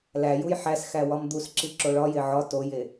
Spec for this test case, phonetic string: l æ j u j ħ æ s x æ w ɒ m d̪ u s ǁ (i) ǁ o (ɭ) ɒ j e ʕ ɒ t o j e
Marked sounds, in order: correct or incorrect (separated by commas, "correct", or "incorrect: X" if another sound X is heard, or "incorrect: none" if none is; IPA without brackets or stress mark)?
correct, correct